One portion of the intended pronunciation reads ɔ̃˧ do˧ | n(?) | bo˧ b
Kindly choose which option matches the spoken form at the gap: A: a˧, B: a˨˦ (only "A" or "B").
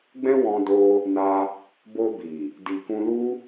A